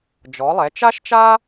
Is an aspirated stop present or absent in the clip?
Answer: absent